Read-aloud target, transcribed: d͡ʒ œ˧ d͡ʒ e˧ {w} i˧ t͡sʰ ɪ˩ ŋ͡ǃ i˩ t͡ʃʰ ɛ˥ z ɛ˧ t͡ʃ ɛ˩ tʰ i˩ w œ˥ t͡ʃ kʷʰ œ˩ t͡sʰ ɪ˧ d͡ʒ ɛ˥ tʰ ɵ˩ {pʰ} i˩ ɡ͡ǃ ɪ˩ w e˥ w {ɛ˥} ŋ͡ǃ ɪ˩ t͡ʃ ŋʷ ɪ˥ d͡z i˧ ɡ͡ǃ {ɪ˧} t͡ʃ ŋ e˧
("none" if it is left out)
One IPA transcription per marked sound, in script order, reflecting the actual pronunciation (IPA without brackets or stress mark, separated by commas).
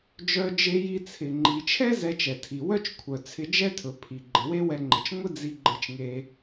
j, pʰ, ɛ˧, ɪ˧